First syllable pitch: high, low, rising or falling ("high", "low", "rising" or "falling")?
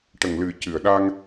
low